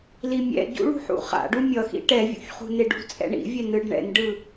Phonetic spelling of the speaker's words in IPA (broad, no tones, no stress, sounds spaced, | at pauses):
l i mʲ ɛ̰ ɟ ṵ ɭ ṳ ħ ṵ χ a̰ ɖ u mʲ ʌ x ḭ ʈ ɛ vʲ ṵ ç χ ṳ n e ɖ ṳ t͡sʼ ɛ̰ ɳ ḭ vʲ ɛ n ɯ ɖ ɳ ɛ̰ n ɖ ɯ